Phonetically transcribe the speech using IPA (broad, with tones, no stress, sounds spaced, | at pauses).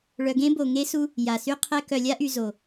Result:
ɭ œ˧ ɡ ẽ˦ b o˨ ŋ e˦ s u˦ | j a˨ s y˦ qʰ ɛ˧ k œ˨ lʲ a˦ ʔ y˨ z o˨